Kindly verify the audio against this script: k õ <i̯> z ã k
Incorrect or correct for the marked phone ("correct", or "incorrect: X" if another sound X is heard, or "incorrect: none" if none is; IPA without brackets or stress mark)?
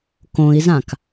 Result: correct